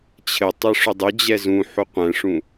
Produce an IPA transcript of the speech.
t͡ɕʰ ɘ tˤ e ʂ ʏ dˤ ʏ d͡ʑ ɛ z ũ ħ u qʷ ɛ̃ ʂ ũ

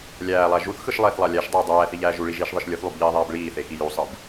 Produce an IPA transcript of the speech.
lʲ æː lˠ æ ʒ u θ x ɯ ʃ lˠ eː θ lˠ ɑ lʲ æ ʃ dˤ iː dˤ æː θ i ʎ æː ʒ u ɭ i ʒ iː ʃ ðˤ ɯ ʃ lʲ ɯ θ lˠ u b ʎ iː ðˤ æː b ɭ iː θ e x i j u sˤ ɯ b

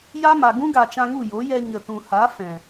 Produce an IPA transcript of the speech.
j a˦ m a˨ ɡ ũ˦ ɡ a˨ t͡ʃ ã˧ ŋ u˦˨ j o˨˦ j ɛ˧ ɲ ə˨ t ũ˨ h a˨˦ f ɛ̃˨

